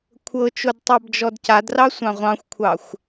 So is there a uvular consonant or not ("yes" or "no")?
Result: yes